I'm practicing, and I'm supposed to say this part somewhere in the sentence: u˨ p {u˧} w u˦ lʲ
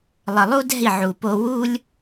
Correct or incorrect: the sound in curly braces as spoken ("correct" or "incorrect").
incorrect